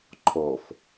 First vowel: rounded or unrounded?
rounded